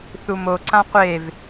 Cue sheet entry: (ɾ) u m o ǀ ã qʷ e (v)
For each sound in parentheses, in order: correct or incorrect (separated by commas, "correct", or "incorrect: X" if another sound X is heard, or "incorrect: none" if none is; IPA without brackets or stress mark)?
incorrect: θ, correct